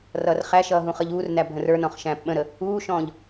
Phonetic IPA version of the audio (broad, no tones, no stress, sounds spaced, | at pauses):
r ʌː r χ æ ʃ ʌː ɦ ũ χ ʌ ʎ uː r n æ bʱ ə̃ r ə˞ n ɔ̃ χ ʃ æ̃ː p ɓ ə̃ ɾ ə | uː ʃ ɔ̃ː ʎ